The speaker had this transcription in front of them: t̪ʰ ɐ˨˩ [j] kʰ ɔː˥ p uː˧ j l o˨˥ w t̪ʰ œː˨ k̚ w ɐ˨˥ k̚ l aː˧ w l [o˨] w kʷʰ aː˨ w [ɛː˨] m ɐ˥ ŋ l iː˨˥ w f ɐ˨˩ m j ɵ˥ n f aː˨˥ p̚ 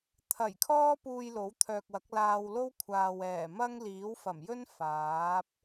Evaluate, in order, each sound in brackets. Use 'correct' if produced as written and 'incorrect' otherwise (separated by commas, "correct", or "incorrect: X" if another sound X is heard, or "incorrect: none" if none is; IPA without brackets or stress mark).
correct, incorrect: o˥, incorrect: ɛː˨˩